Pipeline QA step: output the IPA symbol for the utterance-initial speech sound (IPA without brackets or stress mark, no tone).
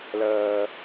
l